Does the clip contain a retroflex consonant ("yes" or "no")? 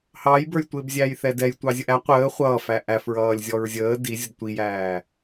no